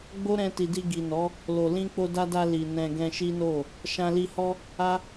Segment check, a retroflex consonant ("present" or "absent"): absent